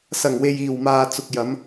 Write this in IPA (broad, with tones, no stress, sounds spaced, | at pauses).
s ɐ˨˩ ŋ w e˨ j iː˨˩ w m aː˨ t͡s ʊ˨ k̚ j ɐ˨˧ m